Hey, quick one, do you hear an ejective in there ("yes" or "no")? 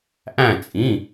yes